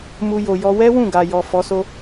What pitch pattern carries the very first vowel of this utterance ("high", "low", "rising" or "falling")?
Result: high